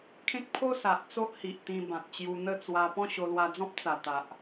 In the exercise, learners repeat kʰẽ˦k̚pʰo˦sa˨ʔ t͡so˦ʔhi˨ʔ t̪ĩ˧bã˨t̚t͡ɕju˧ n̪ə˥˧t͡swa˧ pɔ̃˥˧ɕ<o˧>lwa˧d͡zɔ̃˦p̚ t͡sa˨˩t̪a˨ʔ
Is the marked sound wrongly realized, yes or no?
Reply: no